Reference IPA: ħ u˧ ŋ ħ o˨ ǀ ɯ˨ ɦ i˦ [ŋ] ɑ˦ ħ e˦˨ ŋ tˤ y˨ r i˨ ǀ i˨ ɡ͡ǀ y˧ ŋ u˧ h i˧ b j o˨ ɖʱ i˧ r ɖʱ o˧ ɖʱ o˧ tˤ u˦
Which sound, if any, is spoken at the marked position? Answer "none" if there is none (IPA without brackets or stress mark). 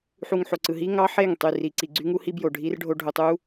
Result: ŋ